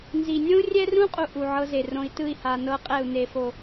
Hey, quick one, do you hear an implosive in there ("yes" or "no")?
no